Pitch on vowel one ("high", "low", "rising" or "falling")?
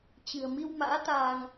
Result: low